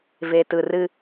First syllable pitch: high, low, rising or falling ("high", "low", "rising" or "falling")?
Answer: low